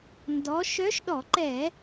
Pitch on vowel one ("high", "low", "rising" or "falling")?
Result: rising